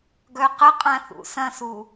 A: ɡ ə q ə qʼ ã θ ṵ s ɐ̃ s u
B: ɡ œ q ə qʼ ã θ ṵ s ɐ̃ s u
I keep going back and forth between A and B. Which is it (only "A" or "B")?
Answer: B